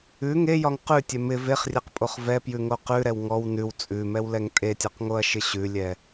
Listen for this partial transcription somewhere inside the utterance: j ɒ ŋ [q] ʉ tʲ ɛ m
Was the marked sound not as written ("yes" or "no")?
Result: no